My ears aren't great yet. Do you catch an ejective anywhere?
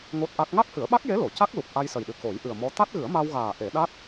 no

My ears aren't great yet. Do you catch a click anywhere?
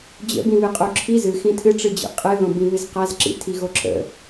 yes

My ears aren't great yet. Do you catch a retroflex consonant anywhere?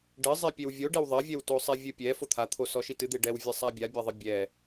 yes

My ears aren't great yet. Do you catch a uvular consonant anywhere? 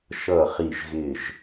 yes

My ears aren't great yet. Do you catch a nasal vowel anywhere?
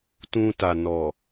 yes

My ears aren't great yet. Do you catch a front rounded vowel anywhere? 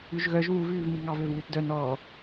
yes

